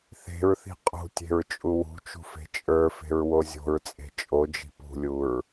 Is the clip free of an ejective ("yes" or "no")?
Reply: no